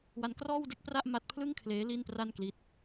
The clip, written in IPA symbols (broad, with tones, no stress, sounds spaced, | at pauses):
w a˦˥ n k r ɔː˥˩ w d e˥˩ k̚ p r a˥˩ ʔ m a˦˥ t̚ pʰ l ɯ˥˩ ŋ kʰ l eː˦˥ l i˥˩ n p r a˥˩ n k l i˦˥ t̚